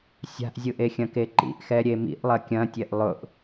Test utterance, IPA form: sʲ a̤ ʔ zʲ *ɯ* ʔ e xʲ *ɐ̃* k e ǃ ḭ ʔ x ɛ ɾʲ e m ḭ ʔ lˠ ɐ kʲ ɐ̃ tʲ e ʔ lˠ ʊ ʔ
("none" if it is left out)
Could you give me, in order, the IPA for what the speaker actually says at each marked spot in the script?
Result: ɯ, ɐ̃

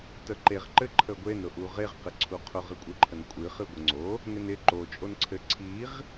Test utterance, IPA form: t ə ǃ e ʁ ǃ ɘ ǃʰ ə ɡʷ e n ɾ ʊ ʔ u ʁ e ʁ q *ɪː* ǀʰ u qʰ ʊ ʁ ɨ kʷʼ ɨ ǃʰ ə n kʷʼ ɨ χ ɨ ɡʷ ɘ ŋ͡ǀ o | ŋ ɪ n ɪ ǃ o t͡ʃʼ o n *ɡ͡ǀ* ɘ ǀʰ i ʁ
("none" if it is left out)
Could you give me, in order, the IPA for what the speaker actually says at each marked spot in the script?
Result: ɪ, ǀʰ

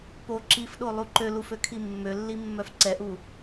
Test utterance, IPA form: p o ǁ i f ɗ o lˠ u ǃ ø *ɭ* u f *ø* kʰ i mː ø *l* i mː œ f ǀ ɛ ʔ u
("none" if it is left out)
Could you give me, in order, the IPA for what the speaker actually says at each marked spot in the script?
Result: l, ø, lː

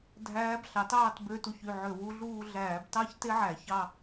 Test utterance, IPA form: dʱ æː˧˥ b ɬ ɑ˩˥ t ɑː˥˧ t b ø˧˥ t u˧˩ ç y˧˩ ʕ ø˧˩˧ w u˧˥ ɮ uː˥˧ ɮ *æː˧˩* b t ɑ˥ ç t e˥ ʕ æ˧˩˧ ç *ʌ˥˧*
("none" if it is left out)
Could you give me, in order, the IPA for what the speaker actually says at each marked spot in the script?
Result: æː˧˩˧, ɑ˥˧

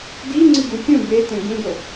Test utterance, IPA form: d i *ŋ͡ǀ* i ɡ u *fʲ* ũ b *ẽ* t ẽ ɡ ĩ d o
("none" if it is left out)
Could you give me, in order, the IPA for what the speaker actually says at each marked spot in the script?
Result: ŋ͡ǀ, fʲ, e

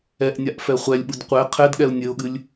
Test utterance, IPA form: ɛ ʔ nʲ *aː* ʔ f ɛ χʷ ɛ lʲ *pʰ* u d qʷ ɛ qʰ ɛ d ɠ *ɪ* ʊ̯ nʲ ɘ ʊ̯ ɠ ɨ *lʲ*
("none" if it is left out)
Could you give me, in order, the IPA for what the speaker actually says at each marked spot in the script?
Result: a, ɓ, ɛ, lʲ

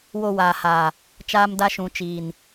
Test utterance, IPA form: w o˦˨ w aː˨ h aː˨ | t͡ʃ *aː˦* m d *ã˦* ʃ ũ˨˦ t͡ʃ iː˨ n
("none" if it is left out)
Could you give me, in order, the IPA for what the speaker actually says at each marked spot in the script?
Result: aː˦, a˦

